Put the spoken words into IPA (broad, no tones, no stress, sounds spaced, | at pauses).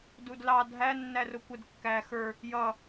d u d l ɑ dʱ æ nː æ r ʊ kʷ ə d kː æ x ə˞ | j ʌ